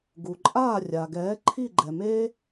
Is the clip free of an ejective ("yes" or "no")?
no